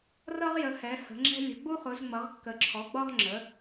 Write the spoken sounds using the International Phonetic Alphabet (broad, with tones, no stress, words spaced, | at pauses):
rʌ˧ʁjə˩˧ hɛ˩˧hə̤˩˧ŋ͡ǁɛ̤˧ lʲə̤˩˧ɡ͡bu˧χʊ˩˧z ŋ͡mʌ˩˧ʁkːə˩˧ǁʰɔ˩˧ɡ͡bɒ˧ʁ ŋ͡ǁə˩˧